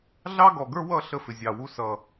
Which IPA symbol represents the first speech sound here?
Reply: ɮ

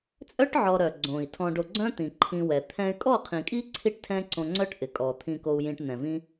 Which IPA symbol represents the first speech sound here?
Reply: t͡sʼ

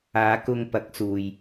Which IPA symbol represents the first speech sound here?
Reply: aː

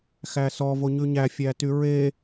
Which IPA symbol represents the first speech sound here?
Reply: x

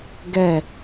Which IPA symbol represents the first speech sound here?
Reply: ɡ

